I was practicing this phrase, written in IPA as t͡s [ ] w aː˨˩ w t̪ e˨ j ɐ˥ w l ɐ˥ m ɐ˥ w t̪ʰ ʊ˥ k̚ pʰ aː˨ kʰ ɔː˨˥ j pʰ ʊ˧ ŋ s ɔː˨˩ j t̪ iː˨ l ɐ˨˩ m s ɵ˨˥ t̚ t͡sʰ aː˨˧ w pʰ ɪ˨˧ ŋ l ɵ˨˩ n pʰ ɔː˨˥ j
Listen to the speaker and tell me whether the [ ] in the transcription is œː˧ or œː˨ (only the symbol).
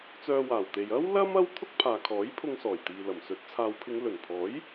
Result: œː˧